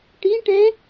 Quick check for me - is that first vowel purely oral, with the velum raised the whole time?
no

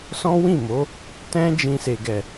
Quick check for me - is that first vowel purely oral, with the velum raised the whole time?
no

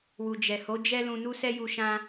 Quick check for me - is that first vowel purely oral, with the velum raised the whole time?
yes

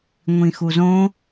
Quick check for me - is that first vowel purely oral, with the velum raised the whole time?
no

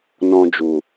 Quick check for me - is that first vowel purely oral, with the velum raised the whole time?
no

